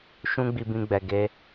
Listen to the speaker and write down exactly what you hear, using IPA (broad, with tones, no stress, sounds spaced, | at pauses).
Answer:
ʃ ũ˦ ɡ͡b i˧ b ĩ˧ ɡ͡b ɛ˨ ɡ e˧